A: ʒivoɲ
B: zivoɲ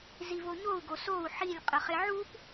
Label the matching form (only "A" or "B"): B